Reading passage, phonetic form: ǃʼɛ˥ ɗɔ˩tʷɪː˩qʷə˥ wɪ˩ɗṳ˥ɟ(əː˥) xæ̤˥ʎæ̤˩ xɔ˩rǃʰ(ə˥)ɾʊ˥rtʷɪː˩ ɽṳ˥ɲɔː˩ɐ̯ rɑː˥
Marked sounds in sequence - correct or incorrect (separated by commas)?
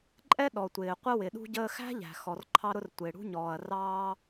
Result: correct, incorrect